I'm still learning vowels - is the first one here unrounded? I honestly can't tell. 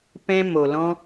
yes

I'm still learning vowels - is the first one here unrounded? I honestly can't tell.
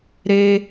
yes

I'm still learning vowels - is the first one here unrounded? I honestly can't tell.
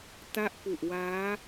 yes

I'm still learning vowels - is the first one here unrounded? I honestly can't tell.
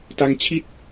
yes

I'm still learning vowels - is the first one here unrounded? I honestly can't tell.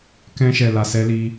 yes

